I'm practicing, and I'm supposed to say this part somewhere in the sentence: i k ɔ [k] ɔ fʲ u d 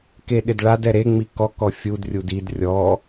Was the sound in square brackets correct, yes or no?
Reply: yes